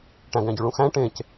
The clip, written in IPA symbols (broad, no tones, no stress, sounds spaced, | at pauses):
ʈ æ̃ ɡ æ̃ ɟ y ɭ ũ x æ̃ ʈ ẽ c